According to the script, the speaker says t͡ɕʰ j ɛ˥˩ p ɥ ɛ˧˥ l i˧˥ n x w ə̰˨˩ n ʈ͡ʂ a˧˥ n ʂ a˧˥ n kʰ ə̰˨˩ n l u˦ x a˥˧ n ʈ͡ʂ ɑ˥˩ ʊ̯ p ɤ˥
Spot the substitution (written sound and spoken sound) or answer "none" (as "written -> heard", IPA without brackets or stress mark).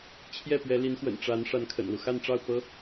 none